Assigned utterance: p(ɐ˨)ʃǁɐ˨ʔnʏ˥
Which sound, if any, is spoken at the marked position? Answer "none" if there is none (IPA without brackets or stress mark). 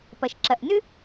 ɐ˨